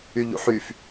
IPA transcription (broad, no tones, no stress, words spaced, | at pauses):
yʎṵħyf